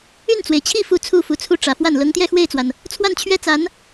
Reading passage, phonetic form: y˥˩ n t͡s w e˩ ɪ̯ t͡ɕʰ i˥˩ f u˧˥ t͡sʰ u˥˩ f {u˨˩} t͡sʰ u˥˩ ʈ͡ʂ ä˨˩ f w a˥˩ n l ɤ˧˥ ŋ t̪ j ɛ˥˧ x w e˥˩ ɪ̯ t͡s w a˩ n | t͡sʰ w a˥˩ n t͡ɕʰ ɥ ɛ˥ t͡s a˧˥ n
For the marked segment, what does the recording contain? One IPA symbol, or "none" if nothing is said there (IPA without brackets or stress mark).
u˨˩